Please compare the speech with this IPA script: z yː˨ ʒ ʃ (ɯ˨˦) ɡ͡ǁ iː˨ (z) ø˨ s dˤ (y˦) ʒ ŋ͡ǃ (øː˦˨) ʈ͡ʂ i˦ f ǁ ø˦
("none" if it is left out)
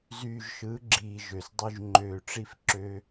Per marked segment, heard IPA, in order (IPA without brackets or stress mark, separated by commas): ɯ˨˦, ʒ, y˦, øː˦˨